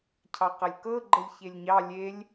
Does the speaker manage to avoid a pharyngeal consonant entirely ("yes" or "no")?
yes